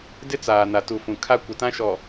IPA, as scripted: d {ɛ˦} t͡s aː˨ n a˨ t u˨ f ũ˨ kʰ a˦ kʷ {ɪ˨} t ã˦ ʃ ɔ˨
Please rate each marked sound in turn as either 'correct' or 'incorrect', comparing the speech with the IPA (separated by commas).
incorrect, correct